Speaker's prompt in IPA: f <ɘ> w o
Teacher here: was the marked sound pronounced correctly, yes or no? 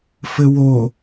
yes